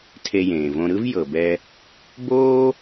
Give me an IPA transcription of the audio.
tʰ e˧ j ẽː˩ v õ˧ ɾ ɯ˥ v j ɤ˩ b ɛ˧ | b oː˥

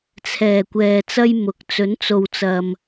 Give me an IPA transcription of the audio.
t͡sʰ ɛː˨˩ kʷ ɛː˨ t͡s ɐ˥ j m ʊ˨ k̚ t͡s ɵ˨˥ n t͡s o˨ w t͡s ɐ˨ m

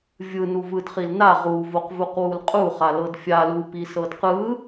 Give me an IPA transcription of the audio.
vʲ ɯ n u v ɯ d χ i l n a ʁ u v o q v u q w u l qʼ u χ a l ɤ d fʲ a l u p i s ɤ d q ɯ

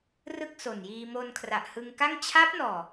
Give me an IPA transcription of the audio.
r ɯ˥˩ k̚ s o˨˩ n j iː˧ m o˧ n kʰ r a˨˩ ʔ h ɯ˧ ŋ k a˥˩ ŋ t͡ɕʰ a˦˥ p̚ n ɔː˨˩

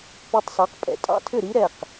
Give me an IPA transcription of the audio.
p ø˧ tˤ s ɑ˩˥ q pʼ ɛ̰˩ tʼ ɑ̰˧ tʰ ʏ˥˩ ɾ i˥ ɾ ɛ˥˩ q

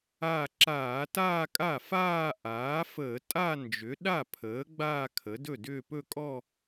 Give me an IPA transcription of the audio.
a˥˧ ǁ aː˧˩˧ t aː˥˧ kʼ a˥˩ f aː˥˧ ʔ aː˩˥ f əː˧˩˧ tʼ a˥˧ n d͡ʒ ʏ˩˥ ɗ a˥˩ pʰ əː˩˥ ɡ͡b aː˥˧ kʰ ə˩˥ d ɵ˥˩ d ʏː˥˧ p ɵ˥˧ kʼ ɔ˥˧

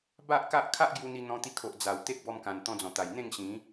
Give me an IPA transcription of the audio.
b a˦ ʔ k a˦ ʔ kʰ a˦ ʔ ɡ j u˧ n̪ i˧ n̪ ɔ̃˧ t̪ i˧ kʰ o˨ ʔ d͡z a˨˩ w t̪ e˦ k̚ b ɔ˧ m k ã˨˩ n t̪ ɔ̃˧ d͡z ɔ̃˨˩ t̪ a˨˩ j n̪ ẽ˥˧ ŋ ɕ ĩ˨˦

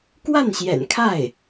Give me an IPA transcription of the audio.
k w a˥˩ n ɕ j ɛ̰˨˩ n kʰ a˥˩ ɪ̯

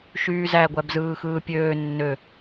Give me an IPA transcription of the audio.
ʃ yː z æ ɡʷ æ b z ɯː x ɯː pʲ øː nː ø

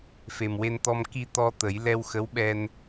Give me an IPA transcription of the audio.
f e˨˩ m w e˧ n t̪ ɔ˧ m k i˧ t̪ ɔ˧ t̪ ə˨˩˦ j l ɛ˧ w x ə˧˥ w ɓ ɛ˧ n

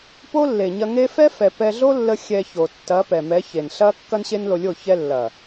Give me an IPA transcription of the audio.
p o˦ lː e˨ ɲ ɐ˧ ŋ e˦ f ɛ˦ f ɛ˨ p ɛ˧ ɮ o˦ lː ə˧ xʲ ɛ˧ ç o˨ tː ɐ˨˦ p ɛ˨ m ɛ˨˦ ç e˨ n ɬ ɐ˦ kː ɐ˦ n ɕ e˦ n l o˧ lʲ o˦˨ ç ɛ˧ lː ɐ˨

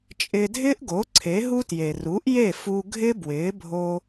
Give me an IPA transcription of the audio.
t͡ʃʼ ɪː˧ dʱ ɪː˥ ʔ ɡ o˩˥ ǀʰ e˩˥ ɦ u˥ t j e˩ r u˩˥ ʔ j e˥˩ f u˧ ɡʱ ɪ˥ b w ɪː˩˥ bʱ o˧

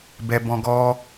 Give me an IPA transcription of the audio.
b ɛ˧ b ɔ̃˦ ɡ ɔ˦

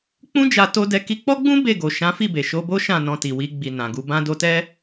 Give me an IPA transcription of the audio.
k͡p ũ˦ d͡ʒ a˧ t o˧ d ɛ˧ k i˧ k͡p ɔ˦ ɡ͡b ũ˦ b e˦˨ ɡ o˨ ʃ ã˨˦ f i˦˨ b e˨ ʃ o˧ b o˦ ʃ ã˦˨ n ɔ̃˧ t i˨ w i˧ ɡ͡b i˨ n ã˨ ɡ u˧ b ã˦ d o˧ t ɛ˦

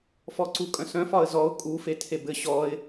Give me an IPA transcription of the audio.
f ɔ ǀ u kʼ œ̃ s œ̃ f ɒ ə̯ z ɔ ʊ̯ kʼ u f e tʰ e b ɘ ɕ ɔ ɪ̯

